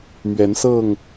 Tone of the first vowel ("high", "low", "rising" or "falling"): rising